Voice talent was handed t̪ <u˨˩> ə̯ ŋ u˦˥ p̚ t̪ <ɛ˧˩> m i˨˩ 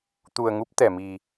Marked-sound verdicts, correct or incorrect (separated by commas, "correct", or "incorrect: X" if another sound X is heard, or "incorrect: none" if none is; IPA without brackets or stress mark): correct, correct